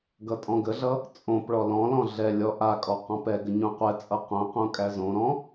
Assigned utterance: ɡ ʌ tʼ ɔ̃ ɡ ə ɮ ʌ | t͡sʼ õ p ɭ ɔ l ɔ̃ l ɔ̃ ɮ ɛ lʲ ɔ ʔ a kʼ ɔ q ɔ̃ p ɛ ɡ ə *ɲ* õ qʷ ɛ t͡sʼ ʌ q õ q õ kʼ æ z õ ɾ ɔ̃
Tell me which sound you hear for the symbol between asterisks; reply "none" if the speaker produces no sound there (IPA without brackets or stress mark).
ɲ